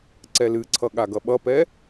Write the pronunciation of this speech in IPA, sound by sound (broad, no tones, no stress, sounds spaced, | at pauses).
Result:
ǀ ɛ l ɨ ǀʰ ʌ ɠ a ɡ ʌ ɓ ʌ p ɛ